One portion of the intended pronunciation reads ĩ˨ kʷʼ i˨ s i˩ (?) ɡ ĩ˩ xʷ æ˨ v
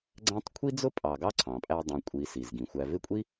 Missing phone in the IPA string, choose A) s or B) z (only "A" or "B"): B